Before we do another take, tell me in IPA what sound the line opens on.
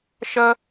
ʃ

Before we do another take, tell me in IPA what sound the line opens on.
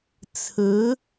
t͡sʰ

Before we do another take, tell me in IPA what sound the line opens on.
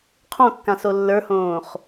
qʰ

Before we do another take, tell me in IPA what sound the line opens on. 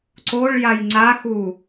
ǀ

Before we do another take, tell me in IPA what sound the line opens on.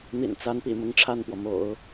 n̪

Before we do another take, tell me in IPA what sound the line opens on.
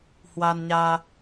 h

